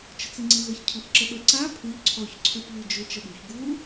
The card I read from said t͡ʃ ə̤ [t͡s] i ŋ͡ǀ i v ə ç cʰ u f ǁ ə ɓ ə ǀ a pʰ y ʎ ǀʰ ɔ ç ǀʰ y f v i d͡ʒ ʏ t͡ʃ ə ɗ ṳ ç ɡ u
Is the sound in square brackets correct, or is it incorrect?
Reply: correct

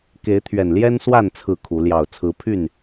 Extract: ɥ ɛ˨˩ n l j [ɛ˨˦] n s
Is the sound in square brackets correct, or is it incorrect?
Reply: incorrect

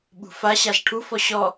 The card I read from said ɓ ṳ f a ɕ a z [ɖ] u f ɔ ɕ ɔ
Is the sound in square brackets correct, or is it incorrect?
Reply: incorrect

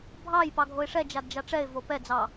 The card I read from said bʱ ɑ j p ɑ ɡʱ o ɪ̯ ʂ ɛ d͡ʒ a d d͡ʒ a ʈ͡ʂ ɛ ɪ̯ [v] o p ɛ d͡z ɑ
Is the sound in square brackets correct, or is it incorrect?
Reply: correct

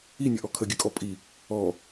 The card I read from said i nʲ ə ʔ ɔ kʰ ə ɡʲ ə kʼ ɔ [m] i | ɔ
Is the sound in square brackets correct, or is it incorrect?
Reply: incorrect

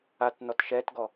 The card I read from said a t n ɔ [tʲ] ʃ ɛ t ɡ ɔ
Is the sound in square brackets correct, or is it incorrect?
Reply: incorrect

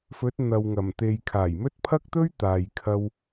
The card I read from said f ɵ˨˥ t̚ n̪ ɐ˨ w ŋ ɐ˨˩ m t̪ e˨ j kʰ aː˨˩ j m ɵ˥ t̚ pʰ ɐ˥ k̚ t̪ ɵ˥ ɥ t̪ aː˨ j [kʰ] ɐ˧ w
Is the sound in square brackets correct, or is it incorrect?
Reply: correct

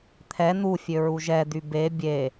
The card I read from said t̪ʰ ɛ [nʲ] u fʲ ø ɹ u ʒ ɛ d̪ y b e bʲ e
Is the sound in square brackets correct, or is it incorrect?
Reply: incorrect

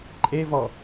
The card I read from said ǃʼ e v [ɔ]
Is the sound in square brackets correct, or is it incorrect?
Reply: correct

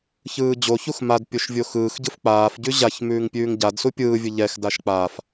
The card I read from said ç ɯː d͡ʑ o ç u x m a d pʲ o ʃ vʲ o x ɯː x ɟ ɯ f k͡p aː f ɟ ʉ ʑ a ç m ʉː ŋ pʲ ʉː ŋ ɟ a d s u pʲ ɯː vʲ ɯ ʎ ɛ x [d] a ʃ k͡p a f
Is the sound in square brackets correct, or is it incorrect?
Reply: correct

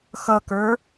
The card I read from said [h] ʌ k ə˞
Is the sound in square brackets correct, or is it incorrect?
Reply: incorrect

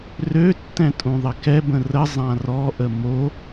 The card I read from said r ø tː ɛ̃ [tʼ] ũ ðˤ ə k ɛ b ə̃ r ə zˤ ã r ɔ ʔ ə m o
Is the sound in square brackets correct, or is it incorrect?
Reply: correct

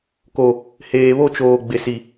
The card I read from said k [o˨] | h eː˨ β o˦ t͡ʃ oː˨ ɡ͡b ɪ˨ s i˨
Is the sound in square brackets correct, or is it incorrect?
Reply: correct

